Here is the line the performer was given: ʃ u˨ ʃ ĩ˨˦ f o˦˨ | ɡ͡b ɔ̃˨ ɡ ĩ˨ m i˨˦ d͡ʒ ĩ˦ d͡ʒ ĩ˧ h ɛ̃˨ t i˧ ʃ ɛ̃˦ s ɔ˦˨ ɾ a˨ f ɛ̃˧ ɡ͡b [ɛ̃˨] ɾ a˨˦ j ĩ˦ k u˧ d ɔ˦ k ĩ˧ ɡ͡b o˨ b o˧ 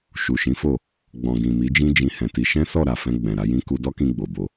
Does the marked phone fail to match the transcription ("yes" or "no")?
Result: no